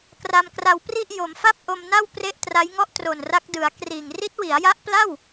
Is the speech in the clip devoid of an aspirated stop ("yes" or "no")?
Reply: yes